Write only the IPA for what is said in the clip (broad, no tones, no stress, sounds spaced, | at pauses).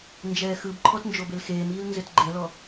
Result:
n d͡ʒ ɛː x ɯ b ǃʰ ɔ t n d͡ʒ o b e l x eː m iː l n z ɘ t ɡ͡ǃ ɛ l ɔ